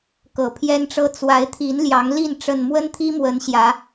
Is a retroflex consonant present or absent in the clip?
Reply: present